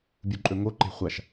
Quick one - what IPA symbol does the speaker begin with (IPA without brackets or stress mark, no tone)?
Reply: bʲ